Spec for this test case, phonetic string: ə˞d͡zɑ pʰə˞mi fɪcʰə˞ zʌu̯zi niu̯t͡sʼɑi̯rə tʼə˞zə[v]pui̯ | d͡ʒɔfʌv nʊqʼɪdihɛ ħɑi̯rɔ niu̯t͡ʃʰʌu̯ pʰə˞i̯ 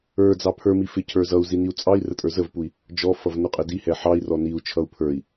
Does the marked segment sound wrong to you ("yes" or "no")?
no